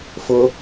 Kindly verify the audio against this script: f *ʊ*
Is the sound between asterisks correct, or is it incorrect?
correct